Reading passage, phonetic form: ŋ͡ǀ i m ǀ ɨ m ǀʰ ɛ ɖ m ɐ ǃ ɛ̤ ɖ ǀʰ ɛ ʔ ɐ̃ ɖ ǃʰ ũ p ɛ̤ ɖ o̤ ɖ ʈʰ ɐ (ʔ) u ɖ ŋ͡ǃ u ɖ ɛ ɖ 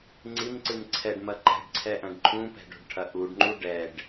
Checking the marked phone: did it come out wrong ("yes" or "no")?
no